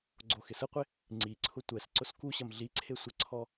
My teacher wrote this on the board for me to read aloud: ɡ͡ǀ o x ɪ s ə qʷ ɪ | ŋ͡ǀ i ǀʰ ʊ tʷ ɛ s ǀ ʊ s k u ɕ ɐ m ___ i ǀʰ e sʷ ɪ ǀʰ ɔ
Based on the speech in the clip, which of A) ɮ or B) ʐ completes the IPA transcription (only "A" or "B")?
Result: A